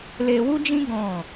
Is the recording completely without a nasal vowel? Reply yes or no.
no